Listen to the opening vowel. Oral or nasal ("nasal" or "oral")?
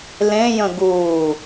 nasal